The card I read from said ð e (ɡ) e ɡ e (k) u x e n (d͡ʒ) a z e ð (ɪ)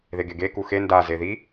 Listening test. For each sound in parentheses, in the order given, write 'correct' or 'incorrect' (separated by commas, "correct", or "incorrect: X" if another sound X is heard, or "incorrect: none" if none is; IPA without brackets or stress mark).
correct, correct, incorrect: d, incorrect: i